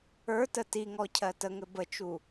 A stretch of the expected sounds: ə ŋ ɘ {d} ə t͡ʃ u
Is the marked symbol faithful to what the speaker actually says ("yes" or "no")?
no